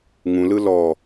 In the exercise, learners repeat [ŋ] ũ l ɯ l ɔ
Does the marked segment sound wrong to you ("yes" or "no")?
no